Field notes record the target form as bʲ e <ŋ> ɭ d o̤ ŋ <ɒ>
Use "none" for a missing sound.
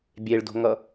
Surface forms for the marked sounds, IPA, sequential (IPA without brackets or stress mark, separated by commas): none, ʌ